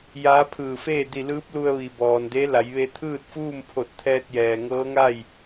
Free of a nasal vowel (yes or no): yes